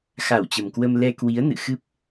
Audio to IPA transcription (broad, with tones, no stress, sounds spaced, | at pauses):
x a˧˩ w t͡ɕ ə˨˩ m k w ə˧ m l ɛ˧ k w i˨˦ ə̯ n ɨ̰˧˨ x ɨ˦˥ p̚